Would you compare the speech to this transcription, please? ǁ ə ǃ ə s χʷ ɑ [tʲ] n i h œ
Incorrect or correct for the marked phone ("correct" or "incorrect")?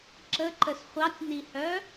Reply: correct